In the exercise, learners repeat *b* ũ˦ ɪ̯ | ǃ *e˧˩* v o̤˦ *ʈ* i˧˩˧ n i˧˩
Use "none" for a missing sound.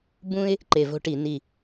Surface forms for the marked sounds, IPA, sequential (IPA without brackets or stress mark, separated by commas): b, e˧˩, ʈ